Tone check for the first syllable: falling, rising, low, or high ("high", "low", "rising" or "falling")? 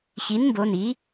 rising